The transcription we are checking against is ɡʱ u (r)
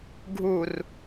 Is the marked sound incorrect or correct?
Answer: correct